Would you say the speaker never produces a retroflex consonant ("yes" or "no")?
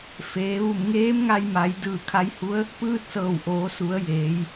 yes